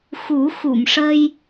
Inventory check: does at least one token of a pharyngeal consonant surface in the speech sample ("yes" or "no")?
no